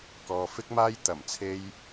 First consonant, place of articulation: velar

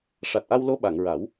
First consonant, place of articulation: retroflex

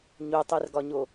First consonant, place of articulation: palatal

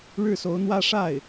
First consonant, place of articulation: retroflex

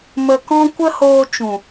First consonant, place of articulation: labial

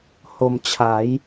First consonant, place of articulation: glottal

